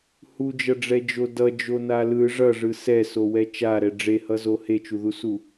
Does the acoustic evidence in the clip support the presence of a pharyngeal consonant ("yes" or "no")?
no